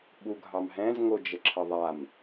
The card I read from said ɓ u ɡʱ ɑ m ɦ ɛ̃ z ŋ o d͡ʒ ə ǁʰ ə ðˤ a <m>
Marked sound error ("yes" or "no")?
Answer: no